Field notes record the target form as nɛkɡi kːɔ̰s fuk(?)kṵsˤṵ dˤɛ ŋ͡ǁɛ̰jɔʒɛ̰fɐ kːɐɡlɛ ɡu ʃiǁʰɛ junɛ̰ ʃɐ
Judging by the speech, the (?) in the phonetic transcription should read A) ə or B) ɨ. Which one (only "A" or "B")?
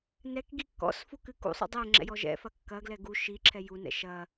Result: B